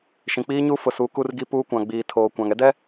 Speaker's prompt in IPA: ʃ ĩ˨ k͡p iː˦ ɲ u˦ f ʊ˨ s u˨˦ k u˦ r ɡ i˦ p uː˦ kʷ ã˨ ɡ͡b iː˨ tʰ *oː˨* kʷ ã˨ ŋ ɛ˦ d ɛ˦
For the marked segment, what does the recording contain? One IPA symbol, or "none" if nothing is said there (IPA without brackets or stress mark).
oː˨